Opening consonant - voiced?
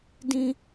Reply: yes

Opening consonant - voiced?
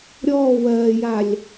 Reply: yes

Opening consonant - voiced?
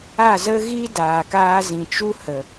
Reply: yes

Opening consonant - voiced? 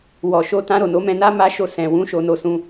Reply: yes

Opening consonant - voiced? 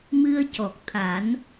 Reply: yes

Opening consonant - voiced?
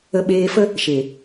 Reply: yes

